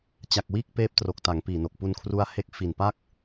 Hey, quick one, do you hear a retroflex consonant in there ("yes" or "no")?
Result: no